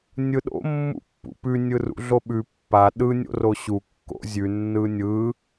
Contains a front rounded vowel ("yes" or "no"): no